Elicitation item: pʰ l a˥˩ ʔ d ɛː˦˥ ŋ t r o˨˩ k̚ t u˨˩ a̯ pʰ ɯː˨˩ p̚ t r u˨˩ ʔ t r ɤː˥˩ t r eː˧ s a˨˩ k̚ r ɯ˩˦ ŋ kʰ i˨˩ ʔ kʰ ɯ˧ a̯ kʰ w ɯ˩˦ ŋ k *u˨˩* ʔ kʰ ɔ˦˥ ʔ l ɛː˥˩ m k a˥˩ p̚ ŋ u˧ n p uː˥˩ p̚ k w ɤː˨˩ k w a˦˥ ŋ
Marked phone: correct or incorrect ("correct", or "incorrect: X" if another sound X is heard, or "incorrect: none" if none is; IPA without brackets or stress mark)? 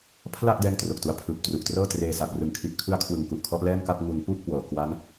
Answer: correct